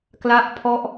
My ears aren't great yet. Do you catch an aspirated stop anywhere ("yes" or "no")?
yes